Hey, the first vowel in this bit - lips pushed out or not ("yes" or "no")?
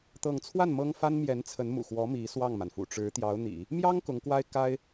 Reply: no